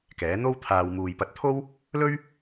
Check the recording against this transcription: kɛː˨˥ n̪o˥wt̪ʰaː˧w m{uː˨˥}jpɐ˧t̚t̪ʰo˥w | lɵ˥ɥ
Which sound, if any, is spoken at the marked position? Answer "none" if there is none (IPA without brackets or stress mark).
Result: uː˨